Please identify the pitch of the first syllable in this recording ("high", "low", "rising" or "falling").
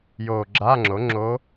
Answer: low